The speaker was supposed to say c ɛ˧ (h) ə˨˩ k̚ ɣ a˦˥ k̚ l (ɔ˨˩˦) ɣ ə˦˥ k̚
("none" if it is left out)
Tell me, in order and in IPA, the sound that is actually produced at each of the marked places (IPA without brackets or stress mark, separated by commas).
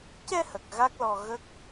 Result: h, ɔ˧